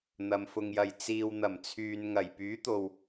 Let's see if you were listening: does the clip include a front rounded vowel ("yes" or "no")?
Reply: yes